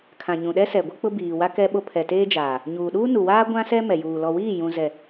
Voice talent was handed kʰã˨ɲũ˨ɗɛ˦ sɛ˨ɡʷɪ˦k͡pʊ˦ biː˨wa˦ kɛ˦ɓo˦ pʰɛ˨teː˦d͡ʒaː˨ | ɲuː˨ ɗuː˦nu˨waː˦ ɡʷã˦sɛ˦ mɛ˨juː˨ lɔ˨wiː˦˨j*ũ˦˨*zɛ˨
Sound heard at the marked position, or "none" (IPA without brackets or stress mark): ũ˨